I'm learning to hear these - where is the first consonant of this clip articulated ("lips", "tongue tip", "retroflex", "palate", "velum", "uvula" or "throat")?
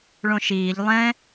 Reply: retroflex